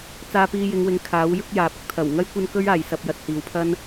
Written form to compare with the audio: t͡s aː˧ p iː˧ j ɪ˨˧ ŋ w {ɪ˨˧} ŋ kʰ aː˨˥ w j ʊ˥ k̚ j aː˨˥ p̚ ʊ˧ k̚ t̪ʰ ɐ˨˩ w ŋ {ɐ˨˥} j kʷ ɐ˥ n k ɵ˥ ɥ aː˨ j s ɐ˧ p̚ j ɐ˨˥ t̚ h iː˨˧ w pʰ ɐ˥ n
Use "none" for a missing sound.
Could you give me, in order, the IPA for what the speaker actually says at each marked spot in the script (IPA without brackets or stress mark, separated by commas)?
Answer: ɪ˨˧, ɐ˥